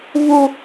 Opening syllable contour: high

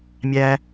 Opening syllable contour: high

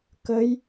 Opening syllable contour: rising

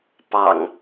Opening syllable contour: low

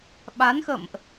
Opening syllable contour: rising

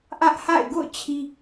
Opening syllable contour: high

